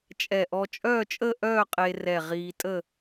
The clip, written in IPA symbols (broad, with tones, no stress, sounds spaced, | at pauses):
t͡ʃʼ ɛ˧˩ ʔ ɔ˧ t͡ʃʼ œː˥˧ t͡ʃʼ ə˥˧ ʔ œː˥˧ qʼ e˧ r ɛ˧˩ ʁ iː˧ tʼ ə˥˧